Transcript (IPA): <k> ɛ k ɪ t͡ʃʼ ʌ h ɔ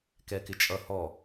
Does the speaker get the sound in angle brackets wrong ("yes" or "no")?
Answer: no